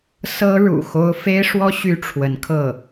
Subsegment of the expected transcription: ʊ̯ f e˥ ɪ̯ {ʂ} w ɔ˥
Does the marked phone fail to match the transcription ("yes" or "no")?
no